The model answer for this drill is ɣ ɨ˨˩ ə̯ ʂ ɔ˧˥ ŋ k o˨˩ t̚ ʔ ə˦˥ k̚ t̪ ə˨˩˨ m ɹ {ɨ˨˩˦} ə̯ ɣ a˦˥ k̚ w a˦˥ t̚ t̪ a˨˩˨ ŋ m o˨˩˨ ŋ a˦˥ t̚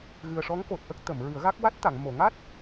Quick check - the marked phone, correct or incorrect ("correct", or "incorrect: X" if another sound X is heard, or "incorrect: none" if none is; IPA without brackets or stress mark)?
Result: correct